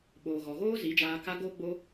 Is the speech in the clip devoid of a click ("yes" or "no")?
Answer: yes